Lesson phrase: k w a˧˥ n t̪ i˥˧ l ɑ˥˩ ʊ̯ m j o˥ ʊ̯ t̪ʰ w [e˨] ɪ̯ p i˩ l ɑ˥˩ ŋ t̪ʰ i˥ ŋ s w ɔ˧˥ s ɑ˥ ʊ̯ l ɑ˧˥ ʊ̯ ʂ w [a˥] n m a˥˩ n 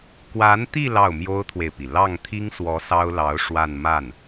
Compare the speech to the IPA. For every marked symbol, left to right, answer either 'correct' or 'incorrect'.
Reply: correct, incorrect

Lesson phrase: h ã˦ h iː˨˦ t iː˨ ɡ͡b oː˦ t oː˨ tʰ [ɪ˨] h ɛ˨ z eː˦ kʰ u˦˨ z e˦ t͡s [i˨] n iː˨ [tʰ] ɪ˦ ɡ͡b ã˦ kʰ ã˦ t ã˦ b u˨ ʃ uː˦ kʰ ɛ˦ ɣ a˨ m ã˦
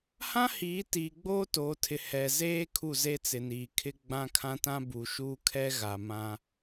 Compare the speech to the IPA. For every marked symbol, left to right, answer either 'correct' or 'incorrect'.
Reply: correct, incorrect, incorrect

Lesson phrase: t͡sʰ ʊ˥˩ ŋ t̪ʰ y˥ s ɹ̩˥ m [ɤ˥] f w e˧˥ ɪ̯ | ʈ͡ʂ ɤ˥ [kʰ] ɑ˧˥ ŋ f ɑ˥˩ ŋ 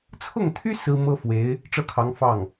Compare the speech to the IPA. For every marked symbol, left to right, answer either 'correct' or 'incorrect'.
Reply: correct, correct

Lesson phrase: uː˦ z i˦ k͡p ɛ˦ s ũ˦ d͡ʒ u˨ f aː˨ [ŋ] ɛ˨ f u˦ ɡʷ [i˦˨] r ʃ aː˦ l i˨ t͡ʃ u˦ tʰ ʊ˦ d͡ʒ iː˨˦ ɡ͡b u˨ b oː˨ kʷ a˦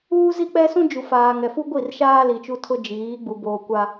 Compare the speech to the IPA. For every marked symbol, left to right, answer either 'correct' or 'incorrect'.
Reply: correct, correct

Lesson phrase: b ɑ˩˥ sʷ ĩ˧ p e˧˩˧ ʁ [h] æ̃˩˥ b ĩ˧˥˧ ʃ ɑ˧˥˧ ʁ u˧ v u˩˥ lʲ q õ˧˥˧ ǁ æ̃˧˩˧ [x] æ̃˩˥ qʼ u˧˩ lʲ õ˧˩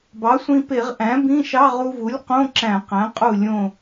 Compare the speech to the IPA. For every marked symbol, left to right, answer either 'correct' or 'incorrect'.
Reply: incorrect, incorrect

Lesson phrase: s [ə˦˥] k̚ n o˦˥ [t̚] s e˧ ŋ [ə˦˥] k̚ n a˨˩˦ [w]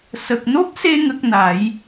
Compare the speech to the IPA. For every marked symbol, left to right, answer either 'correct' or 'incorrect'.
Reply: incorrect, incorrect, correct, incorrect

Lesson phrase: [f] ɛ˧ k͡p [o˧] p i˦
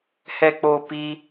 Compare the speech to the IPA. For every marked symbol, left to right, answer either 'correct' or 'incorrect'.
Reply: incorrect, correct

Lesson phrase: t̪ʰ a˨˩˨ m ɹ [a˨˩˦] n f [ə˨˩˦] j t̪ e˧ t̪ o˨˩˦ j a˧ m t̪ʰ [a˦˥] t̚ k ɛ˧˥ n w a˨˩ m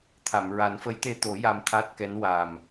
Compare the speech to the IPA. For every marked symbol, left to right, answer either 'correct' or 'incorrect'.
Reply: correct, incorrect, correct

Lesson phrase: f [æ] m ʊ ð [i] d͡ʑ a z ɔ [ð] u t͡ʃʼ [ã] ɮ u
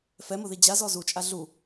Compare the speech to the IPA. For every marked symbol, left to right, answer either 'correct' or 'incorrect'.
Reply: incorrect, correct, incorrect, incorrect

